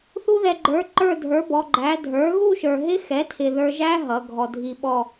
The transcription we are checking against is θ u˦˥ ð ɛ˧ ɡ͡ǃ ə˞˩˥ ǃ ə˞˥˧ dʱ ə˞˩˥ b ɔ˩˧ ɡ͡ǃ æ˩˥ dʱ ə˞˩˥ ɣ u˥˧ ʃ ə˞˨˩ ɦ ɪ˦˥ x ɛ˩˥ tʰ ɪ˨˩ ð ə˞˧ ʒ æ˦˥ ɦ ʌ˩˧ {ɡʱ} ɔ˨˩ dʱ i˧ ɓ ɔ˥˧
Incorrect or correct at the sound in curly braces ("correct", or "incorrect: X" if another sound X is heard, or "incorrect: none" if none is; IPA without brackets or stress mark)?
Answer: correct